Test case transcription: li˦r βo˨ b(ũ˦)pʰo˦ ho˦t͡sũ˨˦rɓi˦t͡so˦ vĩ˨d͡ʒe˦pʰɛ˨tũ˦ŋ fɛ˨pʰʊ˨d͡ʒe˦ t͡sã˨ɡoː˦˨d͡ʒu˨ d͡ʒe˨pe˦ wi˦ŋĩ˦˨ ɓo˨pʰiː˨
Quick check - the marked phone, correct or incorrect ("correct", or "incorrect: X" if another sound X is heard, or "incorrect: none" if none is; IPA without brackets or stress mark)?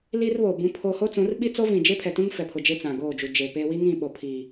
correct